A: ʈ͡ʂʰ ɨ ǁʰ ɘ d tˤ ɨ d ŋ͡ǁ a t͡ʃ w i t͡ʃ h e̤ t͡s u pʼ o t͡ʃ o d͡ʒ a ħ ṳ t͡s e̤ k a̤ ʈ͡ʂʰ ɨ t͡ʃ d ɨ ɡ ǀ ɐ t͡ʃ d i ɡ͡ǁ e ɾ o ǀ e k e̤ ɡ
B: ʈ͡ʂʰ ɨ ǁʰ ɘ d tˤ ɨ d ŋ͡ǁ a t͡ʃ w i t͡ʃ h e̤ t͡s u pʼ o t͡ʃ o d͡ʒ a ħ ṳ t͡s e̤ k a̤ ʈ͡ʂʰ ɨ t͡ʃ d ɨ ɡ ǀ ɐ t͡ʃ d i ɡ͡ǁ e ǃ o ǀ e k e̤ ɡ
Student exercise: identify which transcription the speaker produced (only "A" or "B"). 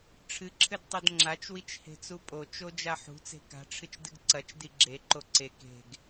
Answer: B